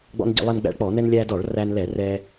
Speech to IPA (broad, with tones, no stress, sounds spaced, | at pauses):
ɡ͡b ɔ̰˧ n ɟ ə̰˧˩˧ lˠ ɛ˧ n ɡ͡b æ̰˧ ɭ k͡p ɔ˧˩˧ n ɛ˧ n lʲ æ˧ d ɔ˧˩˧ ɭ r æ˧ n l ɛ˧˩˧ r ɛ˧